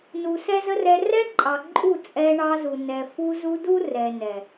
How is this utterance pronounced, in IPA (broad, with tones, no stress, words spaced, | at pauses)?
nu˨sɛ˦zə˦rɛ˧ rɛ˦ǃʼɑ˨ ǃʼu˦˨t͡sʼɛ˧ɳɑ˧zu˨ nɛ˨fu˧zu˧ du˦rɛ˨ nɛ˨